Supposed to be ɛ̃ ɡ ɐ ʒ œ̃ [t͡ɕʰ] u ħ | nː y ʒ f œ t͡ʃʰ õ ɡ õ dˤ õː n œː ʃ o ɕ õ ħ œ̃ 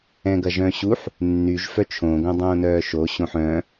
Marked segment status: incorrect: ɕ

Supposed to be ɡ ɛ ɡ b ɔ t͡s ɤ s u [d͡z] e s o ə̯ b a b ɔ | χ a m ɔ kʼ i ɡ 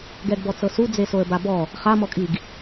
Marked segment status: correct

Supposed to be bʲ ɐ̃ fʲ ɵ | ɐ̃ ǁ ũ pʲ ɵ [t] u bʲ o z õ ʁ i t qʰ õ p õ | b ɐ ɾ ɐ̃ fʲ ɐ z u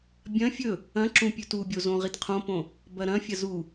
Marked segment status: correct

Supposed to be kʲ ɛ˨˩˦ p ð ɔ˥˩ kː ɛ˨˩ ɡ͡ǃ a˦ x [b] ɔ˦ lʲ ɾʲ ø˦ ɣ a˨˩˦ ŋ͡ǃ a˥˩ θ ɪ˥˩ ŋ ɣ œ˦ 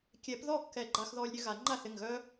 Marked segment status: incorrect: ð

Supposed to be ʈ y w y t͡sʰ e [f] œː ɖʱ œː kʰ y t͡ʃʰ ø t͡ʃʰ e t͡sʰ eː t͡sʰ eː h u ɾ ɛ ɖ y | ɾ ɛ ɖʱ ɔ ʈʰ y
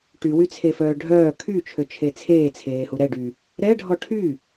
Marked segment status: correct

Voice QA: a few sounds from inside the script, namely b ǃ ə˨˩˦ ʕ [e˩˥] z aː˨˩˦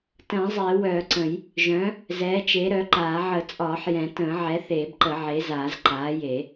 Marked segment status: correct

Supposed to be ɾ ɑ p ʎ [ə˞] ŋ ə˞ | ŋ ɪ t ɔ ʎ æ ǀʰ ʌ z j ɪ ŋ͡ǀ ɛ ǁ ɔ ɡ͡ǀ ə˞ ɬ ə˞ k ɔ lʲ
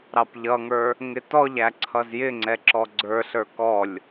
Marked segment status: incorrect: ʌ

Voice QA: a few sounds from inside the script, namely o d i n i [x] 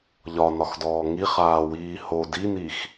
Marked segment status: correct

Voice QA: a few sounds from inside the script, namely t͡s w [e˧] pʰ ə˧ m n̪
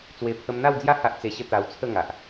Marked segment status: correct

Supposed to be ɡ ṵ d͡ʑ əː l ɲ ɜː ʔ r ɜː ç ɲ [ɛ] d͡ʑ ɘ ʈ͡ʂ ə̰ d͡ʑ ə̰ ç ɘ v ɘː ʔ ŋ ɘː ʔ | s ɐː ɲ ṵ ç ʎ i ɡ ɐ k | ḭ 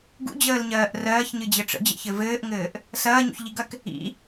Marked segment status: incorrect: ɨ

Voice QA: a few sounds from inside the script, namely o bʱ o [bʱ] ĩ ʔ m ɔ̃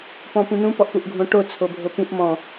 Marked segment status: incorrect: p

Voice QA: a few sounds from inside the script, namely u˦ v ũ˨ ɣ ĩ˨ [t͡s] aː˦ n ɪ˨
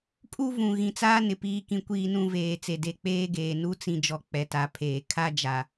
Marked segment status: correct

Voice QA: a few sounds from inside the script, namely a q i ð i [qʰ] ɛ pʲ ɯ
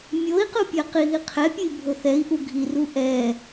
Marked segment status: correct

